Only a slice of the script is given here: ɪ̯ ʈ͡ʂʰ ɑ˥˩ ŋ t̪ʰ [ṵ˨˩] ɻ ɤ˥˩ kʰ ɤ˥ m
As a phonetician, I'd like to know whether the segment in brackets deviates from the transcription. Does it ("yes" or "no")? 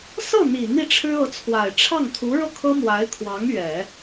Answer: yes